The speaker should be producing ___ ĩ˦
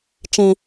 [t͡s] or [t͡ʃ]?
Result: t͡ʃ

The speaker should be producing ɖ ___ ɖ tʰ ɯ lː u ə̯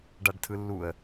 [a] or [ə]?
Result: a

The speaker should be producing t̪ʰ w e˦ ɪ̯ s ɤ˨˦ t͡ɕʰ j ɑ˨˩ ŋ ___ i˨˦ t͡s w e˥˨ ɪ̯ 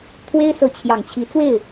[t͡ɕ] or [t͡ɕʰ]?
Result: t͡ɕʰ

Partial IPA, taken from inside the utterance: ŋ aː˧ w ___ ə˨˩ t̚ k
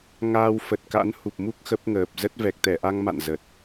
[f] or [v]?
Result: f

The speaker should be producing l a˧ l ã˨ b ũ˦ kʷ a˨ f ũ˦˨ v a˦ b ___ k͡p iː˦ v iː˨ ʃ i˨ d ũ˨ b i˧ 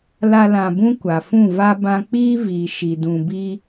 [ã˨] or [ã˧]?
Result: ã˧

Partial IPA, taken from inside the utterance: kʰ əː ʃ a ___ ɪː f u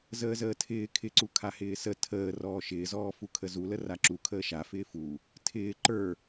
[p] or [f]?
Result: f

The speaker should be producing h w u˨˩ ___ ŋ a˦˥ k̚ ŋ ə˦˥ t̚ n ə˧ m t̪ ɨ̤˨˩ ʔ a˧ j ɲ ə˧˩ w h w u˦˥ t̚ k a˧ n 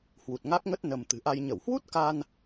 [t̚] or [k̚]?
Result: t̚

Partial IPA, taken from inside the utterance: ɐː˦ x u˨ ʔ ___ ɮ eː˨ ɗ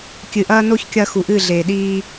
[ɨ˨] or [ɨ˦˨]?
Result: ɨ˦˨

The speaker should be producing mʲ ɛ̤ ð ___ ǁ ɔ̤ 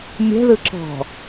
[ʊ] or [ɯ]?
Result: ɯ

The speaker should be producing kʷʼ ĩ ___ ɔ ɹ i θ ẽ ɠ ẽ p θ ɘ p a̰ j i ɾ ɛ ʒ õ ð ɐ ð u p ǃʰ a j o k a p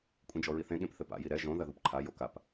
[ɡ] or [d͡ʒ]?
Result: d͡ʒ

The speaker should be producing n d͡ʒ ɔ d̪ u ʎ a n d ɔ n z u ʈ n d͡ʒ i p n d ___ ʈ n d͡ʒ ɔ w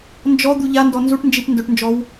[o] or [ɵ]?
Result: ɵ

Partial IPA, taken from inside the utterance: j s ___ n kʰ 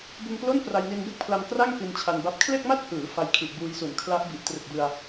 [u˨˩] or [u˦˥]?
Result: u˨˩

